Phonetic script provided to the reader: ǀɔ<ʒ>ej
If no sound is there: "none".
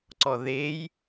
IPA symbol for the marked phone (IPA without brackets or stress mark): ð